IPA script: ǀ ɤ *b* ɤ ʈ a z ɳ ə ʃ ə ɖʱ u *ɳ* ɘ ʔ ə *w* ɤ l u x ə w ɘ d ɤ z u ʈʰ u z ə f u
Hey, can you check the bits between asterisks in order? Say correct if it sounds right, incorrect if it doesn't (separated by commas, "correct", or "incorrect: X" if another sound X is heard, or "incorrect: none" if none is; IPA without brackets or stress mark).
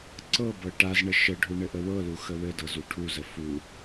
correct, correct, correct